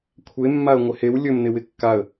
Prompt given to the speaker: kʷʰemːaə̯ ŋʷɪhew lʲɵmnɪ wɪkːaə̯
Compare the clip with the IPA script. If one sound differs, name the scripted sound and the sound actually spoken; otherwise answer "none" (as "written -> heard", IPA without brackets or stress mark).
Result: none